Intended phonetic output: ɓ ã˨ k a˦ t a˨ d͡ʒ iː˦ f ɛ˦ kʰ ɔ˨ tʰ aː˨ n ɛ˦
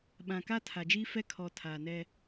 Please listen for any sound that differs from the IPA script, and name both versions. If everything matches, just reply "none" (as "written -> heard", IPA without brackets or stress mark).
t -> tʰ